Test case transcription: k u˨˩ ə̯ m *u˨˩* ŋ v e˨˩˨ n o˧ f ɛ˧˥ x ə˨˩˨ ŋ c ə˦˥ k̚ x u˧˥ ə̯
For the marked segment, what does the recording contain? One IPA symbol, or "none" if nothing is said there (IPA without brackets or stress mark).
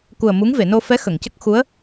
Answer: u˧˥